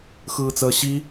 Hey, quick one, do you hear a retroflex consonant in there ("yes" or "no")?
no